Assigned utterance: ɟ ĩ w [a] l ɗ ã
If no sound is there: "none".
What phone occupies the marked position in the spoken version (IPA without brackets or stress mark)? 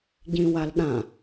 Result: a